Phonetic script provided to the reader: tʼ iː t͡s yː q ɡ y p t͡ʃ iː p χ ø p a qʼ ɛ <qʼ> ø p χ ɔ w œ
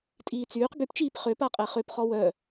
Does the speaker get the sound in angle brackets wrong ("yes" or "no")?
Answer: yes